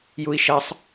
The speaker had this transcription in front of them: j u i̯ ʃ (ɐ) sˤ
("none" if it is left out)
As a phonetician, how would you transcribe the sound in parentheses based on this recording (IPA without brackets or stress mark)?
ɐ